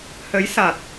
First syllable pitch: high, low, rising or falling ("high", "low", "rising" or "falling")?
rising